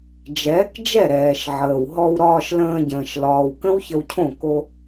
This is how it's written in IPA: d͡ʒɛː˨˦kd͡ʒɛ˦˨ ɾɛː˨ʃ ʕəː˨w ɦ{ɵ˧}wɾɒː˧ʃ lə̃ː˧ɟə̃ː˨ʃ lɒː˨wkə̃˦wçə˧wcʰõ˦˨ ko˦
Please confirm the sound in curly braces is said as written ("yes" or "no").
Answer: no